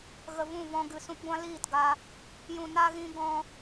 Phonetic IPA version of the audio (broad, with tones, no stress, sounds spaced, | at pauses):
ɣ ə˨ v ũ˦˨ v ɔ̃˧ ɡ ɨ˨ s ũ˧ p ɡʷ ã˦ l iː˦˨ t ɡ a˧ | j ũ˨ n a˧ ɣ ĩ˧ ɡ ɔ̃˧